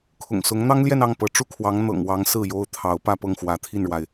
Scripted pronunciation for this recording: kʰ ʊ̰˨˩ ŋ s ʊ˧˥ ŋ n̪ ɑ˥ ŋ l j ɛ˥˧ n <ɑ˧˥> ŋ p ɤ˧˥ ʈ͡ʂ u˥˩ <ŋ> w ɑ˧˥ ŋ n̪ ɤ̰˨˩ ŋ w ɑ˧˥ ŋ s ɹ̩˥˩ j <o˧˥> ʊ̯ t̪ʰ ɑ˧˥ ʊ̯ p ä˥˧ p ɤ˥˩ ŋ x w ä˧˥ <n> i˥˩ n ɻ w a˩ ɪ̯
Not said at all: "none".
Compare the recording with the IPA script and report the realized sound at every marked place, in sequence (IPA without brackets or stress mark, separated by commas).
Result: ɑ˥˩, kʰ, o˥, t̪ʰ